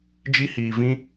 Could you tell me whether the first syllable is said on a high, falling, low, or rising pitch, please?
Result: high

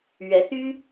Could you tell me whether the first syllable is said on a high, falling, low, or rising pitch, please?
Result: rising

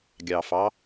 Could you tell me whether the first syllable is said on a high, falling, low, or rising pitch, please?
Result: low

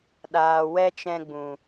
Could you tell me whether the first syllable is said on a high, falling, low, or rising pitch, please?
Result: low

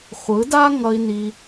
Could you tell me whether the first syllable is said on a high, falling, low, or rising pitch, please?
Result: rising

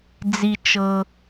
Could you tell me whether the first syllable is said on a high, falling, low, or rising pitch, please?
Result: low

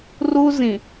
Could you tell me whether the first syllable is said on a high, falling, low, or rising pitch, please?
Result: high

